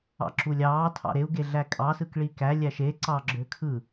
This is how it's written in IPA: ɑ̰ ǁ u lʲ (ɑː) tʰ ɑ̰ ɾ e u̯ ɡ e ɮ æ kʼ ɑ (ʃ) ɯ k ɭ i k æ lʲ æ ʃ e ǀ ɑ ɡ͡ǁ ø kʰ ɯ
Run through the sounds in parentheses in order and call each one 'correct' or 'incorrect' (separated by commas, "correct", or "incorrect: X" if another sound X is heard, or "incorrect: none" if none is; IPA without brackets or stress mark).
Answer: correct, incorrect: s